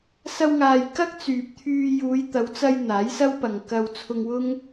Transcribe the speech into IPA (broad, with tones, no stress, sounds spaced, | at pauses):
s ɐ˧ w ŋ aː˨ j k ɐ˥ k̚ t͡s yː˨ p̚ t̪ʰ yː˧ j uː˨˧ j t̪ ɐ˨˧ w t͡s ɐ˧ j n̪ aː˨˥ j s ɐ˥ w p ɐ˨ ŋ k ɐ˧ w t͡sʰ ʊ˧ ŋ w ʊ˥ ŋ